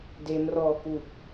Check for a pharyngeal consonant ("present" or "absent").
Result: absent